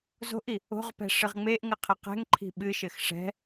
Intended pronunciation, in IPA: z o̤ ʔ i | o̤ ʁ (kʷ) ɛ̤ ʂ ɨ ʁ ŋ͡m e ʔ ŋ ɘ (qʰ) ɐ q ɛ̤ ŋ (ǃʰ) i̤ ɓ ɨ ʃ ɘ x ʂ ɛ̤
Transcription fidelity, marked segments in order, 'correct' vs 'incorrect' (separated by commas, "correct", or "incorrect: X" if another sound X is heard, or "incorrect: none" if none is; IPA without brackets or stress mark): incorrect: p, correct, correct